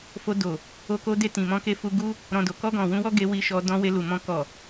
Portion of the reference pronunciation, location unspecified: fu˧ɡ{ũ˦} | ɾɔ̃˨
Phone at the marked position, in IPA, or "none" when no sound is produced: u˦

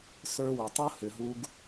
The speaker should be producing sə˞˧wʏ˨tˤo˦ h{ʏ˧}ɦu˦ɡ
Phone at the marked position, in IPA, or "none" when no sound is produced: ʏ˧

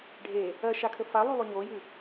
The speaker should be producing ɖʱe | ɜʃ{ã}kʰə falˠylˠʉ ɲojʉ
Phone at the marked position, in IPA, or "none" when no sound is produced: a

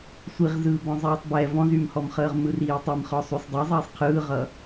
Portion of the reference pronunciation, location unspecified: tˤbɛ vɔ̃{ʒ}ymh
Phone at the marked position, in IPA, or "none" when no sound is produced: z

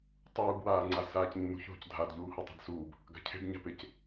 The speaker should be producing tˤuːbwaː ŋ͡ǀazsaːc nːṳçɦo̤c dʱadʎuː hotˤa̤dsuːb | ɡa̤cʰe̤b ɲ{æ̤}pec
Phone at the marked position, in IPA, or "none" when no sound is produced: a̤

